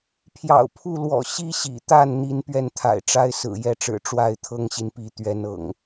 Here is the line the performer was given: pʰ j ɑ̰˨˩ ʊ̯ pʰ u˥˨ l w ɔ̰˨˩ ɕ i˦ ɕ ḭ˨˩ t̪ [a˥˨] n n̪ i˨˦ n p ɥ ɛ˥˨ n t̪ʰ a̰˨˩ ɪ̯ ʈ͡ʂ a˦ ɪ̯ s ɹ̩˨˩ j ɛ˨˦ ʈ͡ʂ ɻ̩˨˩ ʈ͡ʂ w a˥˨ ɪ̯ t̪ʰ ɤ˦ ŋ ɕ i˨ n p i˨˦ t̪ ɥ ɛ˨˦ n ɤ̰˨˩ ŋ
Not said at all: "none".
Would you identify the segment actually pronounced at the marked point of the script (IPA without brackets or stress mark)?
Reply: a˥˨